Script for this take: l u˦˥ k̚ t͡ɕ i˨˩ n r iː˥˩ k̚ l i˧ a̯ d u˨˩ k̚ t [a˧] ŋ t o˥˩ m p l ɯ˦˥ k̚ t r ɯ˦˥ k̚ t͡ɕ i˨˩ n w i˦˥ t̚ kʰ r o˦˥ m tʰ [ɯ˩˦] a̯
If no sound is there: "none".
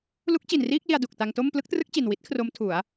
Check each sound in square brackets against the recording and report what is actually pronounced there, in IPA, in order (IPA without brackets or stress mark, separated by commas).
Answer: a˧, u˩˦